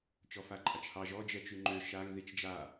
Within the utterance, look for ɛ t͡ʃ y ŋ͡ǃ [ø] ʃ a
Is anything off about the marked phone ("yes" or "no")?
no